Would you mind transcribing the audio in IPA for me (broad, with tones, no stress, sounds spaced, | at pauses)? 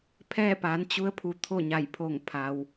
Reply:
pʰ ɛː˥˨ p aː˩˧ n t͡ɕ u˧˥ ə̯ pʰ u˩˧ t̪ʰ o˥˨ ɲ a˧˩ j pʰ o˧˩ ŋ pʰ a˩ w